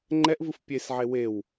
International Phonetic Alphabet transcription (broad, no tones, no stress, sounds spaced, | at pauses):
ŋ͡ǃ ɛ ʔ v ɯ f pʲ e s ʕ e w e w